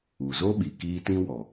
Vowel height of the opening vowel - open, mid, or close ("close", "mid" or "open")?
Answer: close